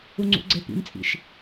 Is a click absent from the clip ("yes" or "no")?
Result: no